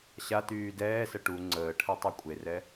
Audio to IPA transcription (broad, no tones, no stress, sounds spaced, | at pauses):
ɕ a t yː d ɛː s ə ʈ u ŋ͡ǀ əː ʈʰ ɛ tˤ u kʷʼ e r ɛ